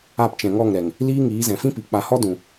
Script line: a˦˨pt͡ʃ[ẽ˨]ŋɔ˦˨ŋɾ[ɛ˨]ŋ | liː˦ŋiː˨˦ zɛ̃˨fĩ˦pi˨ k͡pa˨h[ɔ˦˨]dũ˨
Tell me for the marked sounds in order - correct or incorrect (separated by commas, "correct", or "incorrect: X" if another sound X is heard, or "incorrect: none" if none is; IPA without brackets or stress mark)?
incorrect: ɛ̃˨, correct, incorrect: ɔ˦